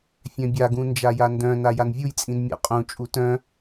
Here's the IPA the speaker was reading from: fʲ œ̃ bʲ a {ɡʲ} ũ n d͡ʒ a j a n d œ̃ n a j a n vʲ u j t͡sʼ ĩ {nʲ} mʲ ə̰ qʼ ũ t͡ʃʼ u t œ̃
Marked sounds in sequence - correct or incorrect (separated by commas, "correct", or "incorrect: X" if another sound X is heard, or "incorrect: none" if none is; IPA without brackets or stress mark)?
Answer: incorrect: ɡ, incorrect: n